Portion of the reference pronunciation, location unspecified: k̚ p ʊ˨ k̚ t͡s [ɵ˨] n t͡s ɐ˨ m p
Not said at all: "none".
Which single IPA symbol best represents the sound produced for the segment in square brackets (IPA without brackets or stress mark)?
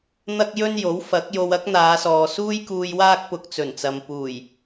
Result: ɵ˨˩